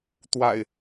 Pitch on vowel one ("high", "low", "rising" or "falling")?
low